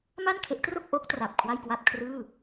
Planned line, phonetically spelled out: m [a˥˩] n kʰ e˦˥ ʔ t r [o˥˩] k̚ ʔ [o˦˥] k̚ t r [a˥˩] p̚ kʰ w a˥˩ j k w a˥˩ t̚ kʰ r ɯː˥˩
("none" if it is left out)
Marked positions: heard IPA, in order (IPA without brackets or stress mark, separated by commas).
a˥˩, o˥˩, o˦˥, a˨˩